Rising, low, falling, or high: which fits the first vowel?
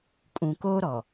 low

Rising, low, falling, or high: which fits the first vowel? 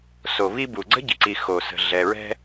low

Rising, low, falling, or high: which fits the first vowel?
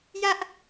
high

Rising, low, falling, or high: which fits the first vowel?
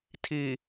low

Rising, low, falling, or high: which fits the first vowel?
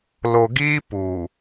low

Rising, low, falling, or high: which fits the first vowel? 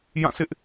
falling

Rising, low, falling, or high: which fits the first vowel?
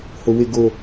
low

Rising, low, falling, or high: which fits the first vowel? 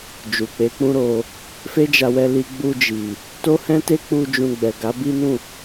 low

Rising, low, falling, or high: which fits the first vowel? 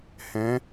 rising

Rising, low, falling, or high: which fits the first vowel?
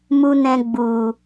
high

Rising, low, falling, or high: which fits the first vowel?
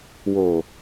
low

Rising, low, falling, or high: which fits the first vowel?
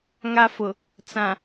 high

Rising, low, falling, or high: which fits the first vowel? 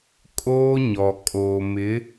high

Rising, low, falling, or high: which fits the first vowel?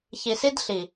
low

